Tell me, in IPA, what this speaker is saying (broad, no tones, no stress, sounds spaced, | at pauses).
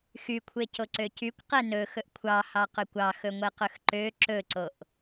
x y kʷʰ e c o ǀ ø c y kʷ q ɛ n ɵ x ɵ ʔ kʷʰ ɑ h ɑ q ø kʷ ɑ x ɵ ŋʷ ɛ q ɵ x ǃ ø ǁ ɵ ǀ o ʔ